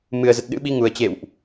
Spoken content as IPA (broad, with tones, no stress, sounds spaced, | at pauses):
m ɨ˨˩ ə̯ z ə˨˩ t̚ ɗ ɨ̰˧˥ ɓ i˨˦ ŋ u˨˩ ə̯ t͡ɕ ḛ˧˨ w ʔ